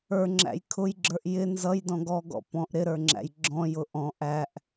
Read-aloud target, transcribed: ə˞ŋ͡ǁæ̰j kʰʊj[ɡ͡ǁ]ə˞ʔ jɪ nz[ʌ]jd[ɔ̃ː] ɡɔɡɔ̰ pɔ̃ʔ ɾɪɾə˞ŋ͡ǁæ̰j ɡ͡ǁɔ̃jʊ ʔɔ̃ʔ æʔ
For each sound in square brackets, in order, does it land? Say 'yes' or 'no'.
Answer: yes, yes, no

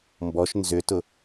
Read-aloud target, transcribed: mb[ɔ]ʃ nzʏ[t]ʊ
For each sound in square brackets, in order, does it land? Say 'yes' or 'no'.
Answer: yes, yes

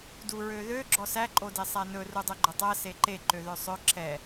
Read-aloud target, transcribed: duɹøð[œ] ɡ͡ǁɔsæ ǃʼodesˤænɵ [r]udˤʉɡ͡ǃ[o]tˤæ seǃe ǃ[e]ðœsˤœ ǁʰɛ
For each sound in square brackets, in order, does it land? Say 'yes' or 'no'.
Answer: no, yes, no, no

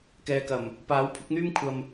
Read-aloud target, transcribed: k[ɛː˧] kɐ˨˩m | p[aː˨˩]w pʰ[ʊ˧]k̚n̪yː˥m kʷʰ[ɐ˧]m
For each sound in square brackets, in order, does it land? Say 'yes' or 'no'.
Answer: yes, no, no, yes

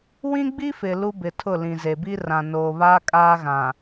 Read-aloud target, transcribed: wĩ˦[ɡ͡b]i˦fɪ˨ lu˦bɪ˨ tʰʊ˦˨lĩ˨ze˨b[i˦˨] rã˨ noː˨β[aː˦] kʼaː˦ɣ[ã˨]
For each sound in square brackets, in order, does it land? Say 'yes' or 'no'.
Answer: yes, no, yes, yes

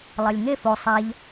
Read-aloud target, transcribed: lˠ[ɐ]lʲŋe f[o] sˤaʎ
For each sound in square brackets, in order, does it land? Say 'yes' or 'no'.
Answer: yes, yes

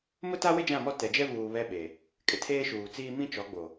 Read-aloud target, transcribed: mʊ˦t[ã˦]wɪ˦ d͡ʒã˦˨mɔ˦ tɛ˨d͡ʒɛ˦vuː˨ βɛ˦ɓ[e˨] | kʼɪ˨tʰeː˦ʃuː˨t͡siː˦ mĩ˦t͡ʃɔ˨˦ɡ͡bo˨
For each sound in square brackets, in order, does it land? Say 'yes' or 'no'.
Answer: no, yes

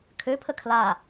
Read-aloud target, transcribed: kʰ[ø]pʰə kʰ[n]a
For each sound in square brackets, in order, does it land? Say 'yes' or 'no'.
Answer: yes, no

